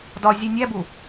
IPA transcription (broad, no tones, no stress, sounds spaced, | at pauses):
d ɒ zʲ e nʲ æ b u